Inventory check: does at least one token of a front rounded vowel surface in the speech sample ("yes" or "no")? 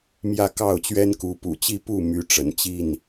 yes